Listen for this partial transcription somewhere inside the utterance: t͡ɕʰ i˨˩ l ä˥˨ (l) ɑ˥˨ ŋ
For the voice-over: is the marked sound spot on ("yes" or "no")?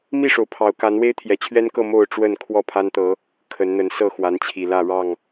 no